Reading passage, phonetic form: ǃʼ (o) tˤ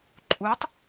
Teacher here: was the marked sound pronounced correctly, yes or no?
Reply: no